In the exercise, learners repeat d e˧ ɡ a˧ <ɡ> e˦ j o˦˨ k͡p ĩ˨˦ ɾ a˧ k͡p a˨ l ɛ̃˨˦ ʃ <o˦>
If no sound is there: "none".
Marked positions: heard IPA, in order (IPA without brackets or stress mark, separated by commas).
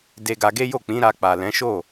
ɡ, o˦˨